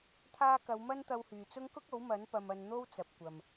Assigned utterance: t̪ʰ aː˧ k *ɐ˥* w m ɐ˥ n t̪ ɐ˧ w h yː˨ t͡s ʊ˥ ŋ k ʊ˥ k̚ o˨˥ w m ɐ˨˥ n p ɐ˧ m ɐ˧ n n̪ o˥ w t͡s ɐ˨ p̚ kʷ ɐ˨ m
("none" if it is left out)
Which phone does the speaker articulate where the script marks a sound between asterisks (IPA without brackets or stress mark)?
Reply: ɐ˨˧